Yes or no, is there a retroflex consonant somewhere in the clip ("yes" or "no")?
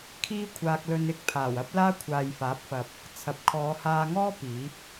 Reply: no